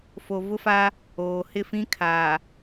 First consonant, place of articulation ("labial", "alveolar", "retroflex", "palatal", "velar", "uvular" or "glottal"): labial